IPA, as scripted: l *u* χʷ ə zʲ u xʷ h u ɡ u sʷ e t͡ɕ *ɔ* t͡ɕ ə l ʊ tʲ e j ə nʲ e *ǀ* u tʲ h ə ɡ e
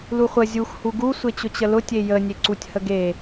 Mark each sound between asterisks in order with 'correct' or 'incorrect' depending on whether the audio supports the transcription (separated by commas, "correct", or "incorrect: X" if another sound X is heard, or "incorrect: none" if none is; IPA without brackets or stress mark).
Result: correct, incorrect: ʊ, correct